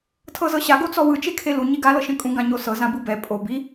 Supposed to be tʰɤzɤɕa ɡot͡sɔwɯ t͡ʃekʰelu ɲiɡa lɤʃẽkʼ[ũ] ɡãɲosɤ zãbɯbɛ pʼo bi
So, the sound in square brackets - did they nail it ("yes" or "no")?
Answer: yes